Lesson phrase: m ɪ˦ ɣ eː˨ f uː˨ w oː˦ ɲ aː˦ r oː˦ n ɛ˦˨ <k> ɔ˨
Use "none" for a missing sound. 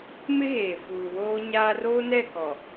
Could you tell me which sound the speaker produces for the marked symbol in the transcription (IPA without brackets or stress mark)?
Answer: k